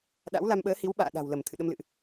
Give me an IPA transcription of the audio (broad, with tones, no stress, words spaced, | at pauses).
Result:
ɗa̰˧˥wla˧mɓəː˨˦hi˨˦w ɓa̰ː˧˨ɗa̤˨˩wlə˧˩m t̪ʰɨ̰˧˨ ɗə˧mlɨ̰˧˨ʔ